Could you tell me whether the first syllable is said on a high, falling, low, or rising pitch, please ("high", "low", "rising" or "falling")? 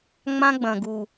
high